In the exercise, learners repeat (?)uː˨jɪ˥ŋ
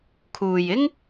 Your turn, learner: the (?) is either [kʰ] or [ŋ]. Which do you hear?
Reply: kʰ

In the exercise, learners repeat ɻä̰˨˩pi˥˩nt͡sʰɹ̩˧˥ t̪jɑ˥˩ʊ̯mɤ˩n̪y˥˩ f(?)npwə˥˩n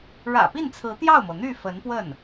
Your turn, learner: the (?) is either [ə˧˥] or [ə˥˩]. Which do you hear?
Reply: ə˧˥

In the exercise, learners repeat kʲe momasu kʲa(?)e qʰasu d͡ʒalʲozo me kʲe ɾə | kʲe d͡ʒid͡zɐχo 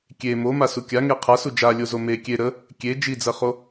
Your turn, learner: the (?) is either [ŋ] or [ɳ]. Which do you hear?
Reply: ŋ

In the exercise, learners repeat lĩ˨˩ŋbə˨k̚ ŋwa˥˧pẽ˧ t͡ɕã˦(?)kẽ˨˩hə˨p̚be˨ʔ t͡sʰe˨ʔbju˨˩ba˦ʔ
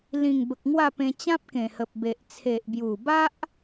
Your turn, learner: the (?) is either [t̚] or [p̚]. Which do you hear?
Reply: p̚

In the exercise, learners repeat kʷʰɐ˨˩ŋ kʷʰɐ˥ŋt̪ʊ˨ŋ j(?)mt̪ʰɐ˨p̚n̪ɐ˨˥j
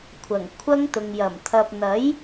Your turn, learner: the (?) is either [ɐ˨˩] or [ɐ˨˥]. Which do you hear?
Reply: ɐ˨˩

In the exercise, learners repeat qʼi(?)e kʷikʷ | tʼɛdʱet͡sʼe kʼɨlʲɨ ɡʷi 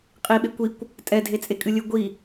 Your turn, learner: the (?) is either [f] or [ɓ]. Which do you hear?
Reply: ɓ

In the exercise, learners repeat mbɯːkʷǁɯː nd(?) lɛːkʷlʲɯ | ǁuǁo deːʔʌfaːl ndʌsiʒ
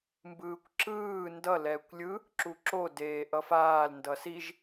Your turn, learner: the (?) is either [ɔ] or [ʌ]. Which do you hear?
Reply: ʌ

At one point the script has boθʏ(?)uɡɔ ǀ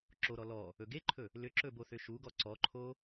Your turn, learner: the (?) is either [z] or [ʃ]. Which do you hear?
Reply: ʃ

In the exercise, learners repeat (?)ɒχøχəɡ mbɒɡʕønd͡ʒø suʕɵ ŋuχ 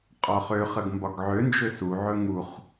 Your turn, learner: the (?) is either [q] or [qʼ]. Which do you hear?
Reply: qʼ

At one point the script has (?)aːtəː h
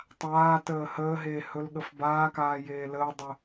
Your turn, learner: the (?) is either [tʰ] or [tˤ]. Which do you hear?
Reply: tˤ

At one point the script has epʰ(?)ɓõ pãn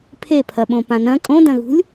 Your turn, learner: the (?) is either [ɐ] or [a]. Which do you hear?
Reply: ɐ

